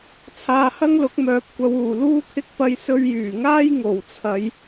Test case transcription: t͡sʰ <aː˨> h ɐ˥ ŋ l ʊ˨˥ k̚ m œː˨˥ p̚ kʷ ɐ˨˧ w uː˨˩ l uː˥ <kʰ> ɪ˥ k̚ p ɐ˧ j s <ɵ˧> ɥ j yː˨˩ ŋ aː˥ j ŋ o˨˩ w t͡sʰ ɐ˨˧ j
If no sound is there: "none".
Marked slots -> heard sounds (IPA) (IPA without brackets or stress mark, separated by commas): aː˨, kʰ, ɵ˧